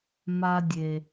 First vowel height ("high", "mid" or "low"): low